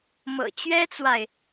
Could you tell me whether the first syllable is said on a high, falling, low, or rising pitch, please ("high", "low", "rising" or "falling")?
low